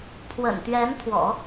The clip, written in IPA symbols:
pʰ w ə̰˨˩ n t̪ ɥ ɛ˧˥ n t̪ʰ w ɔ̰˨˩˦

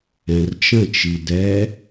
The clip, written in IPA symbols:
ɛ̃ r t͡ʃ ə̃ t͡ʃ i d ɛ

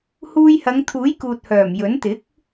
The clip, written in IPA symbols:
h uː˧ j h ɐ˨˧ ŋ t̪ʰ uː˨˥ j k uː˨ t̚ h œː˨˩ m j ɵ˨˥ n t̪ ɪ˨˥ k̚

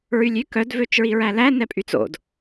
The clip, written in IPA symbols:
ɹ y lʲ y k œ d v ø t͡ʃ ɹ i ɹ æ l æ n ɛ pʼ y t͡s o̰ d

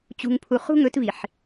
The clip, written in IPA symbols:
t͡ɕ ṳ˨ ŋ pʰ u˨ χ ṳ˦ ŋ ɵ˨˦ t v i˨ ħ

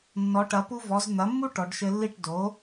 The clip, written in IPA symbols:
nː ɔ˩˧ ʈ ɐ˩˧ p u˧ v ɔ˩˧ z n̪ ɐ˩˥ mː u˥ ʈ ɔ˩˧ ɖ ʃ ɘ˧ lː i˥˩ ʈ d o˩˥

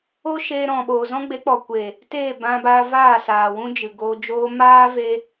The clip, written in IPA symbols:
o˦ ʃ eː˧ ɾ ɔ̃˨ ɓ oː˨ z ɔ̃˦ ɡ͡b e˨˦ k͡p ɔ˨ kʷ e˨ | t eː˦˨ b ã˧ b aː˧ v aː˦˨ s aː˨ w ũ˦ d͡ʒ ɨ˨ ɡ oː˧ d͡ʒ oː˧ m aː˦ v e˧

